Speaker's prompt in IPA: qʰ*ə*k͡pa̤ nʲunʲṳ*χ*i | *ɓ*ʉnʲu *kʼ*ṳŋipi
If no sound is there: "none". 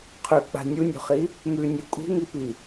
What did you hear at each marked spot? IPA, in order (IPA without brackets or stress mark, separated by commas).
ʉ, χ, m, kʼ